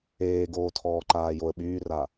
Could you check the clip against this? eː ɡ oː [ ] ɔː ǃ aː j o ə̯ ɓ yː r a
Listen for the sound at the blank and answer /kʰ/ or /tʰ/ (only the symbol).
tʰ